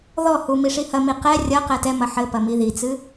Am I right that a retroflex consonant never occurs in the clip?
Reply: no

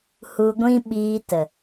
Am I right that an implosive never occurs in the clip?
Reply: no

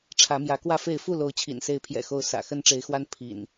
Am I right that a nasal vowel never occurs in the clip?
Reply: yes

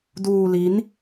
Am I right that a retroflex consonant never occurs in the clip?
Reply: yes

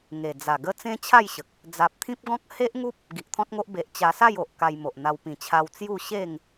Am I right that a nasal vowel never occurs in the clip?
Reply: no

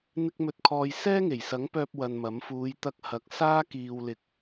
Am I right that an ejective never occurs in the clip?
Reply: yes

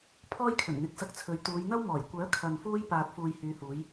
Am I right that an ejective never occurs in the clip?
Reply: yes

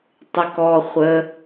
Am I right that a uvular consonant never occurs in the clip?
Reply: no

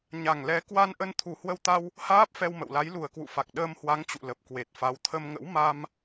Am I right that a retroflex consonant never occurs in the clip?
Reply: yes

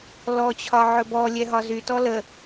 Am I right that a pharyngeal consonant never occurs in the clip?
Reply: no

